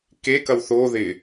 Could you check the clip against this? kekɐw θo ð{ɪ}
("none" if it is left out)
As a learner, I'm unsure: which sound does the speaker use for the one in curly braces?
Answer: ɪ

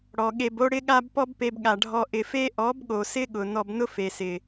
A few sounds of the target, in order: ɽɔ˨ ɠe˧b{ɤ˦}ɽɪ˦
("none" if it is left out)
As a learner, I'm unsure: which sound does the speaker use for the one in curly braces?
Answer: o˦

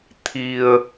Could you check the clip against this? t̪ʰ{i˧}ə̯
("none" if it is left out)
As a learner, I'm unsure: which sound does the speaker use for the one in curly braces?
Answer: i˧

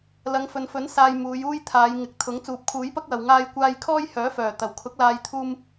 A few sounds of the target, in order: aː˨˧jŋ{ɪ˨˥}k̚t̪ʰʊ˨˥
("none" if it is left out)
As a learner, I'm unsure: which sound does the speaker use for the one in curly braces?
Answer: ɪ˨˥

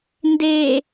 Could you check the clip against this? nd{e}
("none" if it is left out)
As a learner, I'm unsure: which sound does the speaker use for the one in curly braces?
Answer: e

